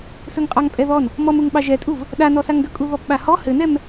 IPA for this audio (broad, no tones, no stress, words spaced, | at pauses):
sɵŋqʼɑŋpʼɛðɔn | mɔmuŋɓɑ ʒɛtʼuv | ɗanɔsaŋdɵ kʼuðɔpɓahɔ hɘnɛm